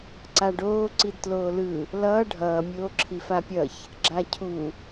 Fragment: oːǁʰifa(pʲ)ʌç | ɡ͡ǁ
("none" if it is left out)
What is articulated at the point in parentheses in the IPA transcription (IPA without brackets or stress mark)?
pʲ